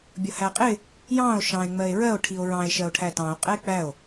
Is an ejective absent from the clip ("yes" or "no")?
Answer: no